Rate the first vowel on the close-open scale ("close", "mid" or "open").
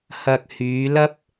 open